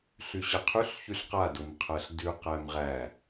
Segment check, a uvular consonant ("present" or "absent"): present